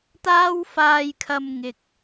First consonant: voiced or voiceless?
voiceless